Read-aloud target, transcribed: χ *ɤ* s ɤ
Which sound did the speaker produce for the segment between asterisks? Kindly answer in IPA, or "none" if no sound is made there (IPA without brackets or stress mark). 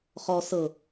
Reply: ɔ